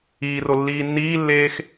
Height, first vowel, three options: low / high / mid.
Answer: high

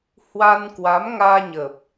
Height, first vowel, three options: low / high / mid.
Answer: low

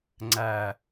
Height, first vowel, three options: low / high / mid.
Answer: low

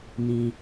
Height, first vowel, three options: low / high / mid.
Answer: high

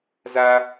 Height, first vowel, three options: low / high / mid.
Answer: low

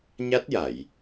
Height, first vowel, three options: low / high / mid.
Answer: low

